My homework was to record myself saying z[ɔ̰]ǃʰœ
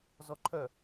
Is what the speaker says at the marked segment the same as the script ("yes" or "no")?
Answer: no